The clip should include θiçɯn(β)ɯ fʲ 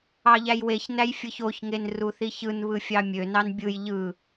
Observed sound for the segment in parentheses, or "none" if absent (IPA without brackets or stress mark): β